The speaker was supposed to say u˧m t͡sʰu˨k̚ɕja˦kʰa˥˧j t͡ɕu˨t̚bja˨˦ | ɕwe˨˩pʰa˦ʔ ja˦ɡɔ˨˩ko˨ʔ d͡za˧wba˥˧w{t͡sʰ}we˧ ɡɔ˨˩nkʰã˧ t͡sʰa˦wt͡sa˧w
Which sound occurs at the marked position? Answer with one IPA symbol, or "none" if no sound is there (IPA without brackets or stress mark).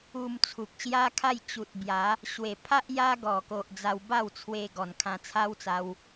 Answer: t͡sʰ